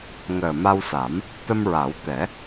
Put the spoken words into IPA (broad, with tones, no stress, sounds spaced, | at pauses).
ŋ əː˨˩ m a˧ w s a˨˩˦ m | t̪ ə˧ m ɹ a˨˩˦ w t̪ ɛ˨˩˦